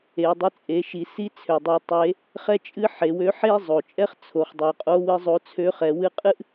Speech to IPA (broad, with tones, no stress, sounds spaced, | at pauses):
e˩˧ dˤ ɨ˧ t͡sʼ e˩˧ ʃ i˩˧ s i˧˥ t͡sʰ ø˩ dˤ i˩˧ tˤ e˩˧ | χ ɛ˥ t͡ʃʼ ɨ˥ ħ e˩˧ w ø˧˥ ħ e˥ zˤ o˩ t͡ʃʼ ɛ˥ χ t͡sʰ o˩˧ χ dˤ o˩˧ qʼ o˧˥ w ɨ˧˥ zˤ o˧˥ t͡sʰ ø˧˥ χ ɛ˩˧ w ɨ˧˥ qʼ ɨ˥ ʔ